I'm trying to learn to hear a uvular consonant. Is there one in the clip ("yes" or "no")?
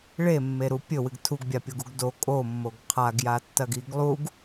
yes